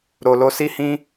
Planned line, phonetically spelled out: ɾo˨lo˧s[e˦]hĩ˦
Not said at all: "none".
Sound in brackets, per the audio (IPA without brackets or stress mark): i˦